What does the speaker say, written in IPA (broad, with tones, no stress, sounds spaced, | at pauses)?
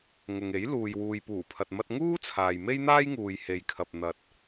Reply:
ŋ ʊ˨ ŋ e˨˥ j l uː˨ j w uː˨ j p uː˨˩ pʰ ɐ˨ t̚ m ɐ˧ t̚ ŋ uː˥ t͡sʰ aː˨ j m e˥ j n̪ aː˥ j ŋ uː˨ j h e˨ j kʰ ɐ˨ p̚ n̪ ɐ˨ t̚